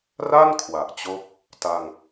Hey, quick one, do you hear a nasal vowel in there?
no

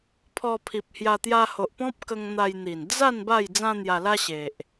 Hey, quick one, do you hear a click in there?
no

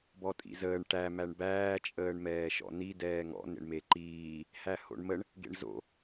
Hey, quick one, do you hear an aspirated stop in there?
no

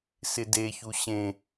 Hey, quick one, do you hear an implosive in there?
no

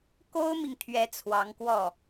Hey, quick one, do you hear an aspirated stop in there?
yes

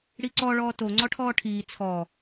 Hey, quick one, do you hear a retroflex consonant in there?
yes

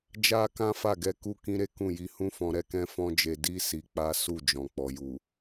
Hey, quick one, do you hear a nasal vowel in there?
yes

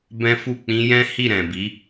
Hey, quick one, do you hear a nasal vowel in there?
yes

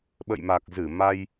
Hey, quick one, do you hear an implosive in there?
yes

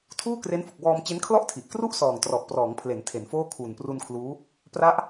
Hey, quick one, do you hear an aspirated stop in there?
yes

